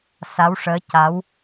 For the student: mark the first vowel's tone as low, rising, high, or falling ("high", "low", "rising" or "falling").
rising